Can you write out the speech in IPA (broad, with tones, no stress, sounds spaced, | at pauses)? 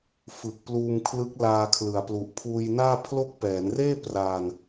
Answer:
f ɯ˨˩ k̚ p l uː˧ m kʰ l ɯ˦˥ k̚ l aː˧ kʰ l ɯ˨˩ a̯ p l u˨˩ ʔ pʰ uː˧ j n aː˥˩ pʰ l o˥˩ k̚ p ɛː˩˦ n r eː˥˩ p r aː˧ n